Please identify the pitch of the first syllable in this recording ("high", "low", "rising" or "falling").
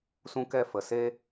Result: high